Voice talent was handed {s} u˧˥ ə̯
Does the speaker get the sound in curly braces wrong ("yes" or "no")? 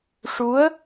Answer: yes